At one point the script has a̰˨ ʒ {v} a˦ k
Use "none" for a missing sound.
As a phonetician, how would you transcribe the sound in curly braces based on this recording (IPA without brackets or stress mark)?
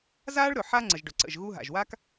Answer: w